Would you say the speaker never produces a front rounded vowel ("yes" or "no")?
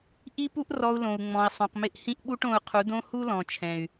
no